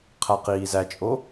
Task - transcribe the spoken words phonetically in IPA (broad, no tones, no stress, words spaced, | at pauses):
qʰæqiːzæt͡ʃʼo